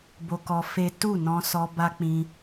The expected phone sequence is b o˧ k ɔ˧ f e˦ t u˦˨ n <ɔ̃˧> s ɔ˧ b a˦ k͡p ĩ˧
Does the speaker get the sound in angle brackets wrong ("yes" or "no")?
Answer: no